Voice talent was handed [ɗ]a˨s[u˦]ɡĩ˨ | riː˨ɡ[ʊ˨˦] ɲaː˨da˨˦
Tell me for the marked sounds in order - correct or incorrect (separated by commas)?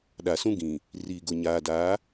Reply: correct, incorrect, incorrect